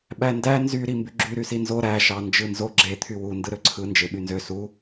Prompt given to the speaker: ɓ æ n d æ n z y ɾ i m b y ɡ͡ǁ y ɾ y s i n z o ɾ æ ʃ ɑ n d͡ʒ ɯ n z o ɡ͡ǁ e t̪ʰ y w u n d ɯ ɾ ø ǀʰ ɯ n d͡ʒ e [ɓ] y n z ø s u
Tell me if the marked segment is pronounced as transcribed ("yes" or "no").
yes